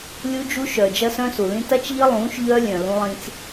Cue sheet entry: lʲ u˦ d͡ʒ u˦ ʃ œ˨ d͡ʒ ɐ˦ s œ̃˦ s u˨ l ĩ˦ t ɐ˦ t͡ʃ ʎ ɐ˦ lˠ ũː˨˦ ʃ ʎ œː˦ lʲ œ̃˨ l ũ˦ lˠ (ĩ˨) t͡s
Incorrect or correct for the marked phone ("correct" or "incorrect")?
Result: incorrect